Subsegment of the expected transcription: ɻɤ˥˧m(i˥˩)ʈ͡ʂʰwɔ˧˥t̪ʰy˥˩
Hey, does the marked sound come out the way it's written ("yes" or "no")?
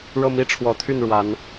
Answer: yes